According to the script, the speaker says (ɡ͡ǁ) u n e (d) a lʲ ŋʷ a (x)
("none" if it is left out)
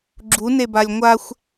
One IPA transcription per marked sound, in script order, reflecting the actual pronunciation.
ɡ͡ǁ, b, xʷ

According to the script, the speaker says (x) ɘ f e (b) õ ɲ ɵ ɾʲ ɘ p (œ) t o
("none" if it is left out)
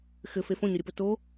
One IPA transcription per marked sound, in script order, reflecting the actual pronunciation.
x, f, ɵ

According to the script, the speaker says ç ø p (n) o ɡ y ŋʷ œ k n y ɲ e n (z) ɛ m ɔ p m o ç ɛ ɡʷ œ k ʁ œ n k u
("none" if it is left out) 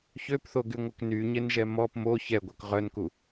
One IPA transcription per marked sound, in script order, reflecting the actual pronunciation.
θ, ʒ

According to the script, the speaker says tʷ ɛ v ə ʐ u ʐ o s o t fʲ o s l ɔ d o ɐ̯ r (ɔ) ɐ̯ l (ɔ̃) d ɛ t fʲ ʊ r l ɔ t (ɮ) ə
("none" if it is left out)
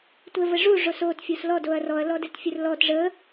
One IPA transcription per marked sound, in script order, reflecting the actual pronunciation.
ɔ, ɔ, ʐ

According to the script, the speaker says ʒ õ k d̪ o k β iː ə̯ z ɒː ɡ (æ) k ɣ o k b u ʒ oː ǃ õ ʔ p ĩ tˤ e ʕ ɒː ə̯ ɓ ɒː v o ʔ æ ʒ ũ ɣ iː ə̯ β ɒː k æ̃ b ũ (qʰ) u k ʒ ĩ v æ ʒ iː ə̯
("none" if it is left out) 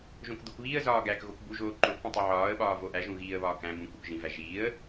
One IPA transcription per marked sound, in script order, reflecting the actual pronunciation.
æ, k

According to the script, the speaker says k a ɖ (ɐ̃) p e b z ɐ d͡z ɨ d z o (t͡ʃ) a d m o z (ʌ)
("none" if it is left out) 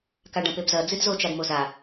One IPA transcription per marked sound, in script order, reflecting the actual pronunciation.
ɐ̃, t͡ʃ, a

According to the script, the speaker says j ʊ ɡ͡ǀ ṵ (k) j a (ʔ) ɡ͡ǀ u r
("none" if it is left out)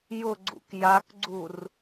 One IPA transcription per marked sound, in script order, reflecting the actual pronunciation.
k, k

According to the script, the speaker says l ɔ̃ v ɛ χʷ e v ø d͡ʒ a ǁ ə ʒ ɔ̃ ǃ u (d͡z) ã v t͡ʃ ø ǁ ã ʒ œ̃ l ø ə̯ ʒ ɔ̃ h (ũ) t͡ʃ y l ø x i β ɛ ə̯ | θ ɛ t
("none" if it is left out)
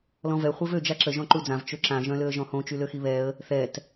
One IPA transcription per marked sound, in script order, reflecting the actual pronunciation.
d͡z, õ

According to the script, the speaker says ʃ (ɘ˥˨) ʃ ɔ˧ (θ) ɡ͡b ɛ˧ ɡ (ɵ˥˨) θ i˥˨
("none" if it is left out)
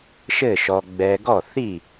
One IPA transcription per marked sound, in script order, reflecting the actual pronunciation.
ɘ˥˨, none, ɔ˥˨

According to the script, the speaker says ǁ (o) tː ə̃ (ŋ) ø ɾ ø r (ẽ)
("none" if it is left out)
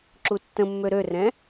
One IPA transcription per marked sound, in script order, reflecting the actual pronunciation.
u, mː, ɛ̃

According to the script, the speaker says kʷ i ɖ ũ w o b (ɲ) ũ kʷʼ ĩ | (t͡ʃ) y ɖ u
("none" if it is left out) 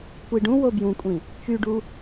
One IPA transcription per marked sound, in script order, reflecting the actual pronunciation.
j, t͡ʃ

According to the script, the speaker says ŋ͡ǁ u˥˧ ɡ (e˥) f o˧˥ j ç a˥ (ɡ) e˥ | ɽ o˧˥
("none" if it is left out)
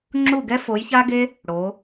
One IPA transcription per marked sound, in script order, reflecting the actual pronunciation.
ɛ˥, ɡ

